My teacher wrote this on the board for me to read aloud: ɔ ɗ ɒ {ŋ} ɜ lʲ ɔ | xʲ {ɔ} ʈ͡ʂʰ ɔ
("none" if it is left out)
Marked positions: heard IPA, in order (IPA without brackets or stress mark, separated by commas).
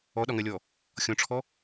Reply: ŋ, ɔ̃